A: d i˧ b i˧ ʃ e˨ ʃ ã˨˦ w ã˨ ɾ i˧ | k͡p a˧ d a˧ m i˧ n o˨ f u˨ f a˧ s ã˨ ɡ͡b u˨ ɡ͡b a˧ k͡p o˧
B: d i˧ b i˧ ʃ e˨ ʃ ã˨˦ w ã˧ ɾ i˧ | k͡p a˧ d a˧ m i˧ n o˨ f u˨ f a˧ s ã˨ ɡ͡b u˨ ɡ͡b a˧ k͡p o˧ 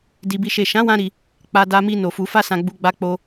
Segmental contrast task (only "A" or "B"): B